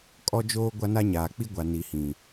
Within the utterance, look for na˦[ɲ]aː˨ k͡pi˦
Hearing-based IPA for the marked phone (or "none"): ɲ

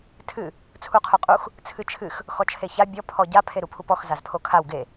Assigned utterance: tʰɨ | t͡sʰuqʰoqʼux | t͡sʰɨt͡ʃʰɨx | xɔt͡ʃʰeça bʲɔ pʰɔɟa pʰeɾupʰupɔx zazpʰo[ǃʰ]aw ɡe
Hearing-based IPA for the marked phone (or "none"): kʰ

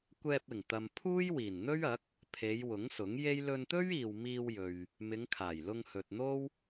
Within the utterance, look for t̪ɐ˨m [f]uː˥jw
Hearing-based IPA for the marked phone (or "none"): pʰ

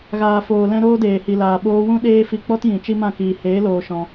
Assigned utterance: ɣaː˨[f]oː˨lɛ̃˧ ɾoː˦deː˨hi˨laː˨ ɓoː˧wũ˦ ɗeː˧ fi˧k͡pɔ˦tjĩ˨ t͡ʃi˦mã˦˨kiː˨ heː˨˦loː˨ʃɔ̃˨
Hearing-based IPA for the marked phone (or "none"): f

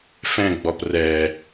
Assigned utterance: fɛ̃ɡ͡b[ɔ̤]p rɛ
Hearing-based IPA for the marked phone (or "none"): ɔ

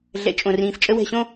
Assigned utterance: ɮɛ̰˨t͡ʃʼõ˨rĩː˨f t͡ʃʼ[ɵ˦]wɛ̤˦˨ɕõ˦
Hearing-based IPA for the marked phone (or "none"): ə˦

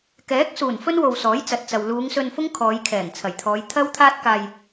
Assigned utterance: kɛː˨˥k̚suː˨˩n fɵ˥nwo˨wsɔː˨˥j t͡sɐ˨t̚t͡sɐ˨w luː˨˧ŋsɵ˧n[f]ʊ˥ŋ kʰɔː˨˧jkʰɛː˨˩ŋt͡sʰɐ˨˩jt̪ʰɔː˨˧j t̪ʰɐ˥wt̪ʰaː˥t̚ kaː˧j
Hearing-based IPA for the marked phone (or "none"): f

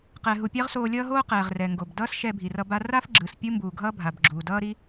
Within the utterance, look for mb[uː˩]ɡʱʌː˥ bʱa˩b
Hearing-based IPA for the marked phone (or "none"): uː˩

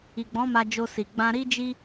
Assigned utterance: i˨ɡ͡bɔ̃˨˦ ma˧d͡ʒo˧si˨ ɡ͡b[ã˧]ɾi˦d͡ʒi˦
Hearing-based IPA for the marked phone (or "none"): ã˧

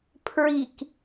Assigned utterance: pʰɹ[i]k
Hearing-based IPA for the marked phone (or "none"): i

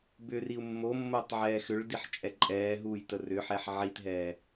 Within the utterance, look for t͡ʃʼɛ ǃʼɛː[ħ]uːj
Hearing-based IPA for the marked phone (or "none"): ɦ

